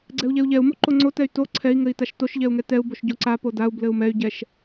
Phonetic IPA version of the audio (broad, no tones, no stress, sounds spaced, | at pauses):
ɡ͡ǀ ɛ u̯ ʎ ɛ u̯ ʎ ɛ u̯ m o ǃ o ŋ͡ǀ o t ɛ y̯ t o ǀʰ ɛ i̯ ŋ ɘ i̯ t a ʃ t o ʃ ʎ ɛ u̯ ŋ ɛ t ɛ u̯ b o ʃ ɟ o ǀ a p o d a u̯ b l ɘ u̯ m ɛ y̯ ɟ ɛ ʃ